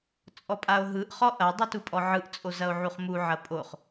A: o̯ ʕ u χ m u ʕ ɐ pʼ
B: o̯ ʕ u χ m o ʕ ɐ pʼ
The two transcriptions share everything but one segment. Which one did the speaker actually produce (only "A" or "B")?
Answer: A